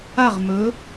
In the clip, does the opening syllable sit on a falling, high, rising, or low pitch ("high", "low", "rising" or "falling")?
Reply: falling